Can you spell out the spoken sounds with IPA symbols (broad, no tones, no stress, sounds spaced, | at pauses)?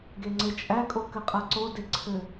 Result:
ɡ e ŋ͡ǀ e t͡ʃʼ æ kʼ o k ɘ qʼ a ǀ o d e ǀʰ ɘ